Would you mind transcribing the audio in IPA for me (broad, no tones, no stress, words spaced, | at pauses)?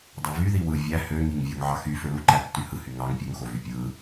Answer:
dˤøvyði wɯ vʲæ hø ŋiŋvʲoŋ ʕɑxy føluǃætːy hɯhy ŋɑŋ pʲøŋxo vypʲɯ